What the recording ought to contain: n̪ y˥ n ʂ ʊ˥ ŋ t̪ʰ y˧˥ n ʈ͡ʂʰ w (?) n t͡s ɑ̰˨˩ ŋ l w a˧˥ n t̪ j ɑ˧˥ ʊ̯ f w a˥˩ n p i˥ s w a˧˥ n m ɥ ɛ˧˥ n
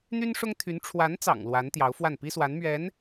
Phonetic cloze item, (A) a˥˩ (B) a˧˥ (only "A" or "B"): B